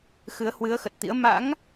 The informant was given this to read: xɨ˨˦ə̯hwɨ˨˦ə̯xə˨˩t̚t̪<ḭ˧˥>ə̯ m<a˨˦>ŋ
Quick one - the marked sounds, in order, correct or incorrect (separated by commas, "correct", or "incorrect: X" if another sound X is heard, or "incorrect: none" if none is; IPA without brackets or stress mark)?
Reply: correct, incorrect: a̰˧˥